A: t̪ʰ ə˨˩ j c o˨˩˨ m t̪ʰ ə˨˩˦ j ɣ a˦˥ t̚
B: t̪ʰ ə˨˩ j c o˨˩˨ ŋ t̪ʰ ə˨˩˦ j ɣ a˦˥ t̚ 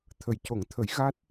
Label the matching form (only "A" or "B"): B